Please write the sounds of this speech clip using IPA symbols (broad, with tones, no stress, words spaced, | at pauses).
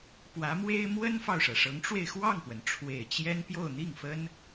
pwä˧˥mwe˥ɪ̯ mwə˥nfɑ˨ʊ̯ʂɤ˩ ʂɤ˧˥ŋʈ͡ʂwe˧ɪ̯ xwɑ˥˩ŋpwə˩n ʈ͡ʂʰwe˨˩ɪ̯ t͡ɕjɛ˥n pjo˥˧ʊ̯n̪i˥˩ŋfə˥n